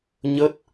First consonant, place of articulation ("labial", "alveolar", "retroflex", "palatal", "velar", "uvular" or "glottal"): palatal